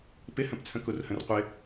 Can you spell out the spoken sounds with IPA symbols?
p ɪ h ə̃ p t͡sʰ ə̃ k u r h ə̃ r qʷ ɪ

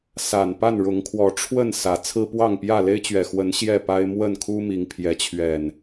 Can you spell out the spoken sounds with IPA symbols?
s a˨˩ n p a˥˨ n ɻ ʊ˨˦ ŋ kʰ w ɔ˨˦ ʈ͡ʂʰ w ə˥˨ n s ä˨˦ t͡sʰ ɹ̩˦ p w ɑ˥˨ ŋ p j ä˥˨ l e˦ ɪ̯ t͡ɕ ɥ ɛ˨˩ x w ə˨˦ n ɕ j ɛ˥˨ p a˦ ɪ̯ m w ə˥˨ n kʰ u˦ m i˨˦ ŋ pʰ j ɛ˨˦ t͡ɕʰ ɥ ɛ˨˩ n

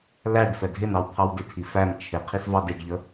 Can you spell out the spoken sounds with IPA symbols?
l æ ɖ f ɛ dʱ ɪ n ɑ w t̪ʰ ɑ w d ɪ tʰ i f æ m t͡ʃʰ ɪ qʰ i s v ɑ d i ɖ ʎ ə

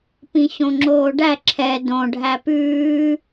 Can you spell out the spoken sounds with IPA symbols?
p ĩ ɕ õ ŋ͡ǁ oː ɖ æ ǁʰ ɛ d õ ɖʱ æ p ʉː

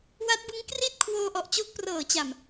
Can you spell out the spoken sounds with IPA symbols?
w a˦˥ t̚ b ɯ˦˥ ŋ k r i˥˩ t̚ kʰ w oː˧ ʔ ɔ˨˩ ʔ t͡ɕ o˦˥ k̚ p r ɤː˨˩ t͡ɕ a˨˩ m

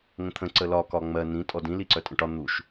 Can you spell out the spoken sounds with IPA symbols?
ŋ ə̃ t̪ʰ ə̃ ǀ ə l ɒ k ɒ ŋ͡m ɜ n ĩ tʼ ɔ d ĩ l i ǀ œ tʼ ə̃ ʈ ɒ n̪ u ʃ

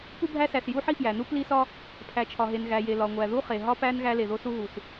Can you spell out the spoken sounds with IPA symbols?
p u˦ bʱ æ˦ s æ˩ s j u˦ ħ i˦ f j æ˩ n u˦ p l i˦ s ɒ˦ | pʰ æ˩ t͡ʃʰ ɒ˩ ɦ e˩ n ɣ æ˩ j e˩ l ɒ˩ ŋʷ æ˩ ð u˦ χ e˩ ɦ ɒ˦ p æ˦ n ɣ æ˦ l e˩ ð o˦ s u˦ ɦ u˩ s

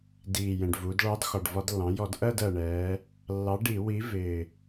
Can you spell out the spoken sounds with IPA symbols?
d iː˨˩ j ɛ̃˨˩ ɖ v uː˩˧ d ɭ ɑ˨˥ d x ɒ˨˩ ɖ v ɒ˧˩˧ d lː ɑ̃˩˧ j ɔ˧˩˧ d ʔ ɜ˥˧ d ɜ˨˩ ɳ ɛː˩˧ | lː ɑ˨˥ ɖ i˧˩˧ w i˨˥ v ɪː˨˩

